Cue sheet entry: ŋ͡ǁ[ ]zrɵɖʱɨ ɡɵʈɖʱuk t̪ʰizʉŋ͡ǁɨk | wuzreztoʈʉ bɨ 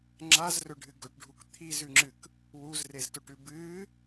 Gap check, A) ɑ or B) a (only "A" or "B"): B